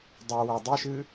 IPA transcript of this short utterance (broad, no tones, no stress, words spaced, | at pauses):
dˤuwa dˤiʃɨ